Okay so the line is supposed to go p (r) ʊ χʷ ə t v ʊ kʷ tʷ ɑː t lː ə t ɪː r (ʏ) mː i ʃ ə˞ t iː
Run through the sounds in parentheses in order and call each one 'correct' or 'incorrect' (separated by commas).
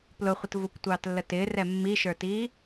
incorrect, incorrect